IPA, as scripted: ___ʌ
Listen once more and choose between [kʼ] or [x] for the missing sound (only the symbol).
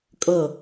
kʼ